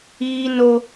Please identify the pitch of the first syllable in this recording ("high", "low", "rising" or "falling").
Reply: high